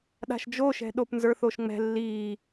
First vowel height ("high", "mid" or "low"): low